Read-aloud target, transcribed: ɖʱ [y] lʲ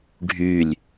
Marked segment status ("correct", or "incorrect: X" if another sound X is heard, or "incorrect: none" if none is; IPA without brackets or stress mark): correct